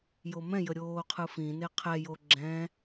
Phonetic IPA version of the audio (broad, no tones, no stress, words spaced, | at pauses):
jomɛ̃jə ɾʲoːqʰɯfĩne qʰɛjo ɡ͡ǁɛ̃